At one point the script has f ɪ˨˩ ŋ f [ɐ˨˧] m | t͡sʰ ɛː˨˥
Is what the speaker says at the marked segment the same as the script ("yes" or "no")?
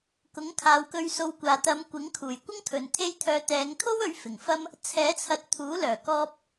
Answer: no